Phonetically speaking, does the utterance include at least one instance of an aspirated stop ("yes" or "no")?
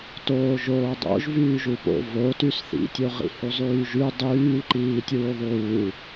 no